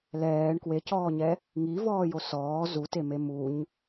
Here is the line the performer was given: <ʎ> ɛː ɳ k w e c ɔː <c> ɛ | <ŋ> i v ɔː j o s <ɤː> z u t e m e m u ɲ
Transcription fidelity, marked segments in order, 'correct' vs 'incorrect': incorrect, incorrect, correct, incorrect

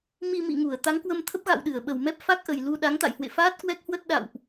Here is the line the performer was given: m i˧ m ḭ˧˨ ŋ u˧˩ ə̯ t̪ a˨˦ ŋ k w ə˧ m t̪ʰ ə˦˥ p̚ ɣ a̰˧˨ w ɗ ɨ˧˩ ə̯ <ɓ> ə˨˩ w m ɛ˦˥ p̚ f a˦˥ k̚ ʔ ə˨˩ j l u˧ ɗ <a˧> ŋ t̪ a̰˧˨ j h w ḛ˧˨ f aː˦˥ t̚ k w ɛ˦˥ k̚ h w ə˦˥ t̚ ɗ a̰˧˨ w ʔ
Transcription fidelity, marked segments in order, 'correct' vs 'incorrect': correct, incorrect

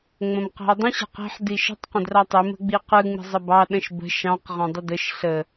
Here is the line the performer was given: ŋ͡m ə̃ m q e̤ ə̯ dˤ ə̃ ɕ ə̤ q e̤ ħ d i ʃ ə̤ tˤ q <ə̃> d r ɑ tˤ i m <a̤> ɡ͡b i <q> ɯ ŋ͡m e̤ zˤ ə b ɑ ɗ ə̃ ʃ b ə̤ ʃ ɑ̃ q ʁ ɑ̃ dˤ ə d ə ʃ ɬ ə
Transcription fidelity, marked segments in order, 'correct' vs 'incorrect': correct, incorrect, correct

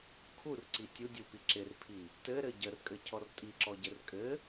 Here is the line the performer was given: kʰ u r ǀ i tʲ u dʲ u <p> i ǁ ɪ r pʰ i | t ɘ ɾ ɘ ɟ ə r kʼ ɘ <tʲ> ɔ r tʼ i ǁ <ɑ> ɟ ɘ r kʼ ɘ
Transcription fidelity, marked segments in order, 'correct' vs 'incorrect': correct, incorrect, incorrect

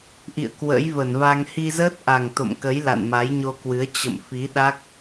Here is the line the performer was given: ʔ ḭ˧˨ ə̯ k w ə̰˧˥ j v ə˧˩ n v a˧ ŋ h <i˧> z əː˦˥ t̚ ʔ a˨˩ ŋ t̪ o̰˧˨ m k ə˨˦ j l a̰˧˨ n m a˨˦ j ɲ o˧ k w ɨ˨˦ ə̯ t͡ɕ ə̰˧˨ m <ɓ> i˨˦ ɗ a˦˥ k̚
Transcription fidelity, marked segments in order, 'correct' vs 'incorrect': correct, incorrect

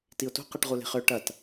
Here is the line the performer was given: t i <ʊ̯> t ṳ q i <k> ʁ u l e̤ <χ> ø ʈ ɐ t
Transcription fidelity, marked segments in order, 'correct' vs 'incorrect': correct, incorrect, correct

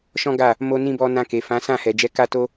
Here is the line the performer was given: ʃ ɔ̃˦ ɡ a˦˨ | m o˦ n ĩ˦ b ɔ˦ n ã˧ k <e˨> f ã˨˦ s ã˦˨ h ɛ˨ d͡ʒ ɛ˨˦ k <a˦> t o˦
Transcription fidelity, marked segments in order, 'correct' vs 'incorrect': correct, correct

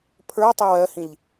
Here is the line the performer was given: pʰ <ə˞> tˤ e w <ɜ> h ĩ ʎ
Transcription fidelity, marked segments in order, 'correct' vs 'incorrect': correct, correct

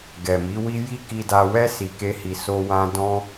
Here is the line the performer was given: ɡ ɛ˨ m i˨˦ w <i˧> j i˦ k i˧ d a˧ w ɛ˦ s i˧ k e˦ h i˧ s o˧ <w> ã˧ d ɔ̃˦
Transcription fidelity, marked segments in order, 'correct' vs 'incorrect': incorrect, correct

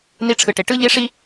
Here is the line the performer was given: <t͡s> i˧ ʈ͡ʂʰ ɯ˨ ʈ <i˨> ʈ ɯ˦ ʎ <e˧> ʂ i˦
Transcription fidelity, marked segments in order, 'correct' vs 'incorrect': incorrect, incorrect, incorrect

